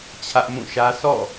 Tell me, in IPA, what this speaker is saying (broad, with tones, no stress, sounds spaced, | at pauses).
t͡ɕʰ ä˦ ʔ m ũ˦˨ ʃ ä˦ s ɔ̰˦˨